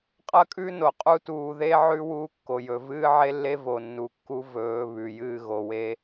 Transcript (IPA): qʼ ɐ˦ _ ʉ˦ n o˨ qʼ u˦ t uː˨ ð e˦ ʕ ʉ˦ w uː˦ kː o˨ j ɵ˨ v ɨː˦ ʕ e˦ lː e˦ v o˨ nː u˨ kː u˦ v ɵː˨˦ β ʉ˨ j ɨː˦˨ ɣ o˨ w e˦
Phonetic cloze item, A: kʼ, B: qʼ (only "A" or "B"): A